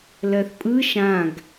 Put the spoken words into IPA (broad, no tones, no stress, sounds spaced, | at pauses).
l ɜ θ pʼ ɯ ʃ ã ɡ